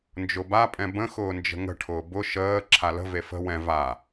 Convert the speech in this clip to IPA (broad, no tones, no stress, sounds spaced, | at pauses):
n d͡ʒ ʊ b a pʼ ɛ̃ b ə̃ x ʊː n d͡ʒ ə̤ ŋ ə̤ ʈʰ ʊː b ʊ ʃ əː ǁʰ a l ə̤ v e f ə̤ w ɛ̃ v a